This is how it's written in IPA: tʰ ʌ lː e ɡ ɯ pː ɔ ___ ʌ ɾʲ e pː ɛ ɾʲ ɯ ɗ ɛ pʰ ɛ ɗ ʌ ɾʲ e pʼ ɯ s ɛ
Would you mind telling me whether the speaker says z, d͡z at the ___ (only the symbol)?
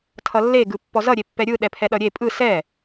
z